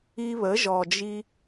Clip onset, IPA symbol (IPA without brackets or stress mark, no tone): i